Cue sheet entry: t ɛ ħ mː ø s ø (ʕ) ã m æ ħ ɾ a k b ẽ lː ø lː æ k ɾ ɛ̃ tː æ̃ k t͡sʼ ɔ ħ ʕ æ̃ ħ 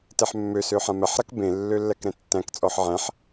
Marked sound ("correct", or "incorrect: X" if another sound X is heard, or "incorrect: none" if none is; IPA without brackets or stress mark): incorrect: ħ